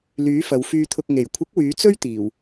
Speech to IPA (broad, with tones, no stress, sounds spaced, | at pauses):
l yː˨˥ f ɐ˨˧ w f yː˧ t̪ʰ ʊ˧ k̚ ŋ e˨˩ j kʷʰ ɪ˨˥ k̚ w yː˨˥ t͡s ɵ˥ ɥ t̪ iː˨˩ w